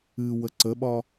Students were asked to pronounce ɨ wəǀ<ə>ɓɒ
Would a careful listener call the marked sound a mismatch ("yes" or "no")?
no